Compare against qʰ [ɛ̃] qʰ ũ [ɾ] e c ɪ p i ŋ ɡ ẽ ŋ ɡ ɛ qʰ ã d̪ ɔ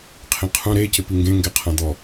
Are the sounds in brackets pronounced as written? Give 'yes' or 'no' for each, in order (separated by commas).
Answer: no, yes